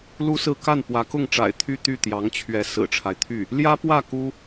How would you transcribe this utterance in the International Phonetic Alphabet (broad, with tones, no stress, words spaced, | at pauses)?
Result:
lu˥sɹ̩˥˧ ka˥˩npwä˧˥kʊ˥˩ŋʈ͡ʂa̰˨˩ɪ̯ t̪ʰy˥˧t̪y˥˩ t̪jɑ˧˥ŋt͡ɕʰɥɛ˧˥ sɹ̩˨˩ʈ͡ʂʰa˦ɪ̯t̪ʰy˥˩ | ljä˥pwä˥˩ ku˥